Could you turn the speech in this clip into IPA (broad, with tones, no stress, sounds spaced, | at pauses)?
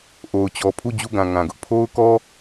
ʔ o˨ ʊ̯ t͡ɕ ɔ˨ pʰ u˦˨ d͡ʑ u˦˨ ɡ ã˨ ŋ ã˨ ɡ ʊ˦ ʔ pʰ o˦ ʊ̯ k ɔ˦